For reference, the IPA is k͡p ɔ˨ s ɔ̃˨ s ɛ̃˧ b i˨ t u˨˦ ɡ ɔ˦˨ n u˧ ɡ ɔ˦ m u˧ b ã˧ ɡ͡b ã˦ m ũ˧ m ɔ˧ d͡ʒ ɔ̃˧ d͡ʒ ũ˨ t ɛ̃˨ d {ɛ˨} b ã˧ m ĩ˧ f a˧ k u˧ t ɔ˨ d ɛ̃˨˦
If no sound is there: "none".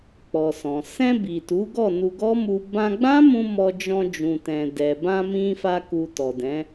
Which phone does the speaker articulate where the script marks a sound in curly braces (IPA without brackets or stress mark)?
ɛ˨